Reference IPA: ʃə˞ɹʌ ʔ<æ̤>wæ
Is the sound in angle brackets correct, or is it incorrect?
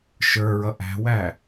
correct